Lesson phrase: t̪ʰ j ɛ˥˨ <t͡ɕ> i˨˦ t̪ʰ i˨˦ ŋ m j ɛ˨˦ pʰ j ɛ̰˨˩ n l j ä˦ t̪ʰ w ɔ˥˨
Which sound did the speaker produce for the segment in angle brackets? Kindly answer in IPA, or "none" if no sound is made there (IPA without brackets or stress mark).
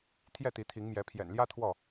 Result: t̪